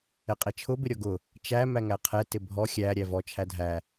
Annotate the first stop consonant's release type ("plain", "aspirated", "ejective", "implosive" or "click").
ejective